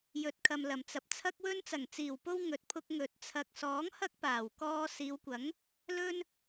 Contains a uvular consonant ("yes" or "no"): no